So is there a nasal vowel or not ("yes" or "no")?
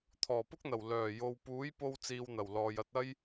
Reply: no